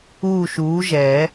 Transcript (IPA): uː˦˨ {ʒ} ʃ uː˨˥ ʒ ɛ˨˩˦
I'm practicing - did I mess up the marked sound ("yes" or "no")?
yes